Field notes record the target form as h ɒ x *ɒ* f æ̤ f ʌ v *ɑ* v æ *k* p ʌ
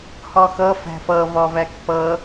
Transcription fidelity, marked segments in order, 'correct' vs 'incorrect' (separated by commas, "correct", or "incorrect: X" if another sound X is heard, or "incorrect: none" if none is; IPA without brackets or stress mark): incorrect: ʌ, incorrect: ɒ, correct